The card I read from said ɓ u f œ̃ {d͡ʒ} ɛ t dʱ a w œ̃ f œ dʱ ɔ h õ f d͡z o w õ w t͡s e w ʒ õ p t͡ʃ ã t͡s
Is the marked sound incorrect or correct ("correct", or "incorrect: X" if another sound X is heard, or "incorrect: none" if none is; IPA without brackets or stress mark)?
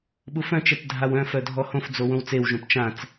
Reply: incorrect: t͡ʃ